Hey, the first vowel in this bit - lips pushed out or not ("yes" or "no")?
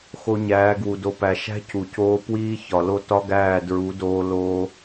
yes